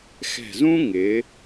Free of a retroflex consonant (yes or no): yes